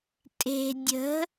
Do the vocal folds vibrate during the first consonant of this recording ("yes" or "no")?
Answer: no